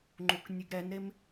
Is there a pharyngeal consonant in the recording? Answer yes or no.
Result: no